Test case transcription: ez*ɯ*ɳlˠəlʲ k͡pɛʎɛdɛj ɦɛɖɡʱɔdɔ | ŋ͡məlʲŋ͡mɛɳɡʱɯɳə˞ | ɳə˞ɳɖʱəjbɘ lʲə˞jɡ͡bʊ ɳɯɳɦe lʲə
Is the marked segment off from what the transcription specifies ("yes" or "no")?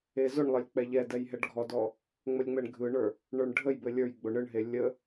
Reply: yes